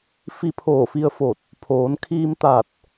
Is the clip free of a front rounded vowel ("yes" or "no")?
yes